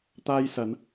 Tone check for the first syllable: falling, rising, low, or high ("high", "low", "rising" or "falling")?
high